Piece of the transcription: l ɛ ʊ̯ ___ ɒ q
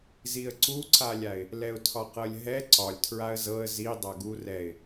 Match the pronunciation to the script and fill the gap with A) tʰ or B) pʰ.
A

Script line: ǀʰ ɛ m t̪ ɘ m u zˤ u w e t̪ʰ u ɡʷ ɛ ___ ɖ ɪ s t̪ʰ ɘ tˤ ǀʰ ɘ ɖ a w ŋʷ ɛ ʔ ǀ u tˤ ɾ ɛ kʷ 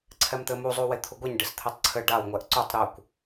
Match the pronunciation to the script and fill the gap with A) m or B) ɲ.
B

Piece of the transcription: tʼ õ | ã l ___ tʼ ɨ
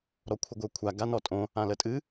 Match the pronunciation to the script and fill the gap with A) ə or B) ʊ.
A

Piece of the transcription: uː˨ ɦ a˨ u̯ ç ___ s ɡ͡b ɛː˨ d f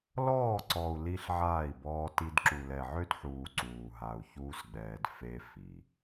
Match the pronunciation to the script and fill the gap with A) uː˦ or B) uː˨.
A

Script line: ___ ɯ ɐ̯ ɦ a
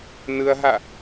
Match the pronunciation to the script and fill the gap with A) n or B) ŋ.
A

